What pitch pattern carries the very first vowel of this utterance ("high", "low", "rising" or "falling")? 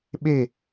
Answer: falling